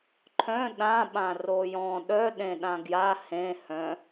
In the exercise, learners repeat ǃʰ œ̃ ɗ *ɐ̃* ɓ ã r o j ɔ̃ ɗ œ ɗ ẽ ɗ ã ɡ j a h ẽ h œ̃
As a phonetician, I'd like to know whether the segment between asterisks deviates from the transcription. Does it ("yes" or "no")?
yes